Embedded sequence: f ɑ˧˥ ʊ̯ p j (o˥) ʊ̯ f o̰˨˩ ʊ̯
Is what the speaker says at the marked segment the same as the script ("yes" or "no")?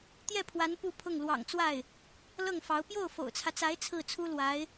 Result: no